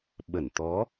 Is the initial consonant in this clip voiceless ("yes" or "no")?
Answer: no